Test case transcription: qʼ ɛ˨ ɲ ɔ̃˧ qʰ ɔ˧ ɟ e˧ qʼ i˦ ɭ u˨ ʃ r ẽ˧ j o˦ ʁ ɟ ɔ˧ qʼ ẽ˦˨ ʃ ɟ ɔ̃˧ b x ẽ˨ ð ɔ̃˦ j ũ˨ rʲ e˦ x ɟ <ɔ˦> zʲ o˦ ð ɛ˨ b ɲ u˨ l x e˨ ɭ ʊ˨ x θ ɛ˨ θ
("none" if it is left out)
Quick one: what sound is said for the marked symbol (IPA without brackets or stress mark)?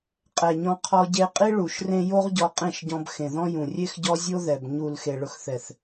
ɔ˦